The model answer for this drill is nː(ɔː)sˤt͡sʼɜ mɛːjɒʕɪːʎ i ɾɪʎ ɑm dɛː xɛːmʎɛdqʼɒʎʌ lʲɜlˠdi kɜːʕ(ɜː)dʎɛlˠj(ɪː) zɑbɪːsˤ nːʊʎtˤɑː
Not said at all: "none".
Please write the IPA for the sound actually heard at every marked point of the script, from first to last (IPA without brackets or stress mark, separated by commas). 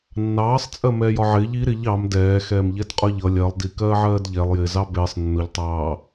ɑː, ɜː, ɪː